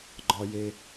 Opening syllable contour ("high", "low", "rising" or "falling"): high